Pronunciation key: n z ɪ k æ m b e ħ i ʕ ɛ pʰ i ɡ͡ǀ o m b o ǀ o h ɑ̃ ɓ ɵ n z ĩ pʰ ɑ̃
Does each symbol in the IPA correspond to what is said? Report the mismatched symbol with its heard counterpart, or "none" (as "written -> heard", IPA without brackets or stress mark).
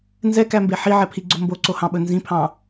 ɪ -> ɛ